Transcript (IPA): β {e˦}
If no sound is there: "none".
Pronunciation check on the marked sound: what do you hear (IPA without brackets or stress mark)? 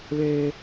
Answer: e˦